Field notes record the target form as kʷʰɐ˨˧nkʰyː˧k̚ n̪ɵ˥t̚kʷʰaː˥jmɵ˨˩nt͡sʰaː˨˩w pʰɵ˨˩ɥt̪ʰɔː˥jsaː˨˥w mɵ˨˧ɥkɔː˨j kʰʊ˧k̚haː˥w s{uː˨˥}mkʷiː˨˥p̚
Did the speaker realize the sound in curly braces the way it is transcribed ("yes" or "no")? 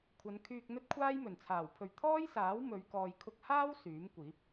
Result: no